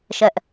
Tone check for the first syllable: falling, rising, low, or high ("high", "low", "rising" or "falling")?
high